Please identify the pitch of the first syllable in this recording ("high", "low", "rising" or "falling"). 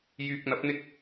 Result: low